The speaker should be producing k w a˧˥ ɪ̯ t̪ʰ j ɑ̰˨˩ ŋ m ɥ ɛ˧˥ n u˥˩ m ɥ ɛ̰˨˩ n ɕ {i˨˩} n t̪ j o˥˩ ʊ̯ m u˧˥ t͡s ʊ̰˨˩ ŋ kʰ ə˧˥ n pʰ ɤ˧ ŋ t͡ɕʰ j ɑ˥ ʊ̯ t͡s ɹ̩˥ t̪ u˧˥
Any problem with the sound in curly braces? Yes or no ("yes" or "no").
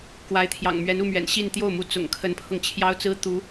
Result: yes